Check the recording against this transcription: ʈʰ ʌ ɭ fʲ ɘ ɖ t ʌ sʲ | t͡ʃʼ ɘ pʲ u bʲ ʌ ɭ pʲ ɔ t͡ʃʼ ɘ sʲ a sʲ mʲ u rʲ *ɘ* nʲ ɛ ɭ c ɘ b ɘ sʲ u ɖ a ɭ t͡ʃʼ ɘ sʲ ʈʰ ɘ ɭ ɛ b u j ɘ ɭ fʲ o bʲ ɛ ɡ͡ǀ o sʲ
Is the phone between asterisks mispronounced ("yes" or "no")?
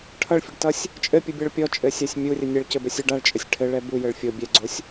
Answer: no